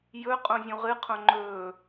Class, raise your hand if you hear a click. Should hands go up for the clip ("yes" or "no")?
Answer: yes